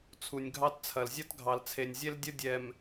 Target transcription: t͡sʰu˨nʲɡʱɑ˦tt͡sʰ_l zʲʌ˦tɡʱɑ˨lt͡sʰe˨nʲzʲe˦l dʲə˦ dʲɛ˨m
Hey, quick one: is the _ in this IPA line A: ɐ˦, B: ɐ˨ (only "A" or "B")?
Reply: B